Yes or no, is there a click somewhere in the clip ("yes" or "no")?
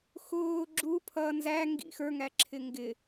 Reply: yes